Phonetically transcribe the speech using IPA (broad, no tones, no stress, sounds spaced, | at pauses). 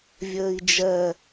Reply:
vʲ əː i̯ d͡ʒ ɜ